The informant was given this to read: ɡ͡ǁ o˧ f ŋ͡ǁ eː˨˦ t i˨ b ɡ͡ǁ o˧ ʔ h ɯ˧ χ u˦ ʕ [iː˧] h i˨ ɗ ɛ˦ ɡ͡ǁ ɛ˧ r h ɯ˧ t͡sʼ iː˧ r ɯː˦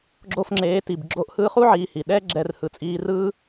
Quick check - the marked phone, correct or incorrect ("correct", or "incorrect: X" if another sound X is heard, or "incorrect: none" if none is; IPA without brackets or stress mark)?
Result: correct